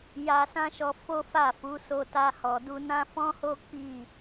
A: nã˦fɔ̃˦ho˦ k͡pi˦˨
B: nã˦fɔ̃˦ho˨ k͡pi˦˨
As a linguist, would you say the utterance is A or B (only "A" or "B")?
A